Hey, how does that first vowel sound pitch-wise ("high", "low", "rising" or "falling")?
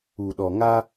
low